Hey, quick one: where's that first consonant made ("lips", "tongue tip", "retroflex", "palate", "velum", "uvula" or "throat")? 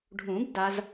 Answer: retroflex